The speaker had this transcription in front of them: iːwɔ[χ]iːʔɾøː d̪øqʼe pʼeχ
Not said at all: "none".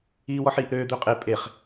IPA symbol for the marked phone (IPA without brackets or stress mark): ħ